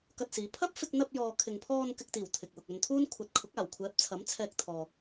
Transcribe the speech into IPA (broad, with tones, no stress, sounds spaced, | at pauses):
k ɐ˧ t̚ s iː˨˧ pʰ ɐ˥ p̚ f ɪ˧ k̚ n̪ ɐ˧ p̚ j ɔː˨ kʰ ɪ˨ ŋ pʰ ɔː˧ n k ɪ˧ k̚ t̪ iː˨˩ w t̪ʰ ɪ˨ k̚ w ʊ˨ k̚ ɵ˧ n t̪ʰ uː˥ n kʷʰ ɐ˨ t̚ kʰ ʊ˨˥ k̚ aː˨˩ w kʷʰ ɛː˨˥ p̚ t͡sʰ ɐ˨˥ m t͡sʰ ɛː˧ k̚ t̪ʰ ɔː˨